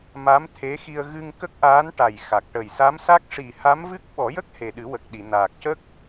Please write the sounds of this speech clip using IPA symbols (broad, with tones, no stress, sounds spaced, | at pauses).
m a˧˥ m t̪ʰ e˧˥ x i˧ ə̯ ɣ ɨ˧ ŋ k ə˦˥ k̚ ʔ aː˧˥ n ʈ a˨˩ j x a˨˩ k̚ ʈ ə˨˩ j s a˧˥ m s a˦˥ k̚ ʂ i˨˩ h a˧˥ m v ɨ˦˥ k̚ ɓ ɔ˨˩˦ j ə˦˥ k̚ h e˨˩ ɗ ɨ˨˩˦ w ə˨˩ k̚ ɗ i˨˩˨ n aː˨˩ k̚ c ə˦˥ k̚